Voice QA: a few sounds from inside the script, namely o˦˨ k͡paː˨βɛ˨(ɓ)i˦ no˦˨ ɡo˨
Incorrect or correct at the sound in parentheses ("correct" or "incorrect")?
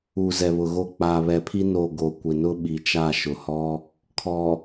incorrect